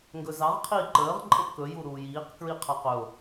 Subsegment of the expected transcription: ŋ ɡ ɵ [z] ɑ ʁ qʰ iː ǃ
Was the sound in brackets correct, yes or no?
yes